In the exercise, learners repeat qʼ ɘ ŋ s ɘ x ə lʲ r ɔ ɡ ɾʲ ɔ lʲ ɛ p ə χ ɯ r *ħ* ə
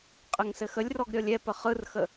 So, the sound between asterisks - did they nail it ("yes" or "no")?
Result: no